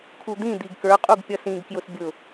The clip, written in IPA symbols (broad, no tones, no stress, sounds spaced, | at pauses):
kʰ u d̪ ĩ d̪ i ɡ k ə˞ qʼ u ɡ pʲ ʌ s ĩ ɡ k j ʊ s bʲ ʊ